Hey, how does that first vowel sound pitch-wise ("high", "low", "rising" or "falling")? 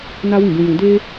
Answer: high